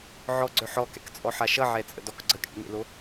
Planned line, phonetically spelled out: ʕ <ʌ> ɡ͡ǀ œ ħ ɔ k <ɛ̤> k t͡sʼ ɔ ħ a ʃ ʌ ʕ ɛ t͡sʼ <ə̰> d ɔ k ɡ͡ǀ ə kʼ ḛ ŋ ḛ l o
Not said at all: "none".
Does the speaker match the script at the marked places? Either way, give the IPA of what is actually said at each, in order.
ɔ, ɛ̰, ə̰

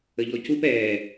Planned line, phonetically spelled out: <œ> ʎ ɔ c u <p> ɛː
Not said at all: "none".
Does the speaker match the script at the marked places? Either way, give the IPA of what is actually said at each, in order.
ə, p

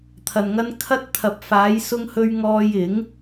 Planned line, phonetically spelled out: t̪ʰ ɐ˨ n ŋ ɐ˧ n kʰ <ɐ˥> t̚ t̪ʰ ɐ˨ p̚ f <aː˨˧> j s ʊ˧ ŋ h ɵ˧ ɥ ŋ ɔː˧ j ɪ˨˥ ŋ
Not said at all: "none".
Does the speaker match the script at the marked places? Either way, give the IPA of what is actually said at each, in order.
ɐ˧, aː˨˧

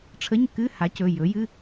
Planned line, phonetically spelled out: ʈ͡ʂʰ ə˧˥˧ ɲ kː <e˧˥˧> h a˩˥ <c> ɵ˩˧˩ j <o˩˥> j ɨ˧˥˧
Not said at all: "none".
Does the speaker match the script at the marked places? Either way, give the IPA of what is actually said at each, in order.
ɨ˧˥˧, c, ɵ˩˥

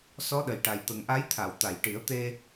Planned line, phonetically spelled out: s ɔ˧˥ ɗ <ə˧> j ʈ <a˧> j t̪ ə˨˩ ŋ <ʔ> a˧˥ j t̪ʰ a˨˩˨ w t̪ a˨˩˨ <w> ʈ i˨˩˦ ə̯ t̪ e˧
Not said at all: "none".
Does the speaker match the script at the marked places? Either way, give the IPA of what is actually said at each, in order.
ə˨˩, a˨˩, ʔ, j

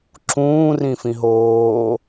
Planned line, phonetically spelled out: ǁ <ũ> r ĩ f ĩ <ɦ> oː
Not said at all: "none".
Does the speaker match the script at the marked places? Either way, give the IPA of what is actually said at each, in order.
ũː, ɦ

